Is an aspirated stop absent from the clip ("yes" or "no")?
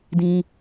yes